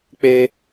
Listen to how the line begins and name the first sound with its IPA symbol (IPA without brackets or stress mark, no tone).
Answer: k͡p